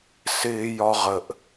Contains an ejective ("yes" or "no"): no